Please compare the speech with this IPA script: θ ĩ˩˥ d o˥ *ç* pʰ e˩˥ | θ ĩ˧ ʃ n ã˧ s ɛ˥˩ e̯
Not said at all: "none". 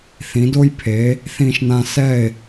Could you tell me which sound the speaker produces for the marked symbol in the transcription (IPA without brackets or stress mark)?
j